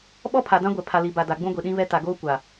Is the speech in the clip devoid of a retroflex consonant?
yes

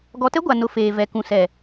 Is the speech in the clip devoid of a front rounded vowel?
yes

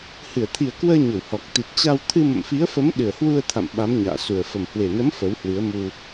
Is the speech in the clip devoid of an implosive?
no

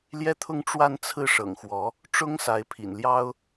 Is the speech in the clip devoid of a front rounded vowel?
yes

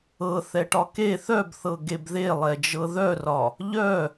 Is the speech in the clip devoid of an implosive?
yes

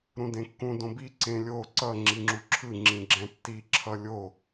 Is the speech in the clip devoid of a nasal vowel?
no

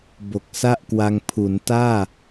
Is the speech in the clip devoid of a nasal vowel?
yes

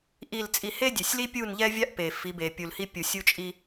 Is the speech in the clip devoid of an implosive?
yes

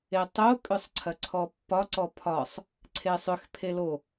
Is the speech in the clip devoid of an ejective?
no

